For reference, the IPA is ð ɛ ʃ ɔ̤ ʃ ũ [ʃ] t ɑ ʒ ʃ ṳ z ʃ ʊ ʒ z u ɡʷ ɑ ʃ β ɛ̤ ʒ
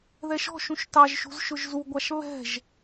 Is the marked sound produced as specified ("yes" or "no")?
yes